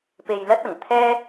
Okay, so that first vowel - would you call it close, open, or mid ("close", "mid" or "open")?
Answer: mid